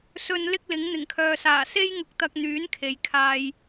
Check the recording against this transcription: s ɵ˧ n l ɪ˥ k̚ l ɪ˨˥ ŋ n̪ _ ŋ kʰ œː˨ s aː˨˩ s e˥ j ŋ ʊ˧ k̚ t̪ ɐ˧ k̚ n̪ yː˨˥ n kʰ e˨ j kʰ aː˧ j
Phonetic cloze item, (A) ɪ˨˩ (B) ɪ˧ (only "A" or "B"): A